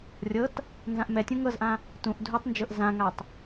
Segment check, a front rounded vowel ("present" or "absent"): absent